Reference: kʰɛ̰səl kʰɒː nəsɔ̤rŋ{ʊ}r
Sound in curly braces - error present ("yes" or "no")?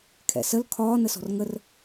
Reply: yes